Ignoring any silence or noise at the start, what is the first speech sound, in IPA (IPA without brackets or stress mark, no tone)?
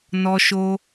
n